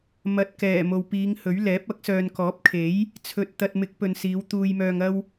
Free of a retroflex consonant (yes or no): yes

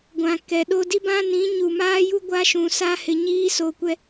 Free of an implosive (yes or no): no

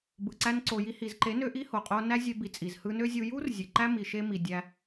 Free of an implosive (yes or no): yes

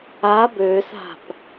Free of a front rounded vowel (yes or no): no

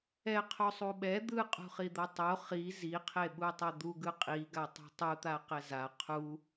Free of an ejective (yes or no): no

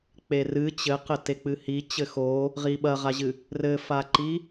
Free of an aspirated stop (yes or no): yes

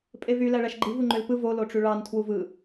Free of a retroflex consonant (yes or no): no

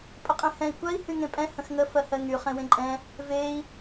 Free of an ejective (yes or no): no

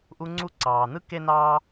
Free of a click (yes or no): no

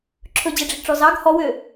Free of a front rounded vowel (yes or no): no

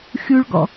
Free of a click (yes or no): yes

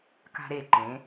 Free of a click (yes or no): no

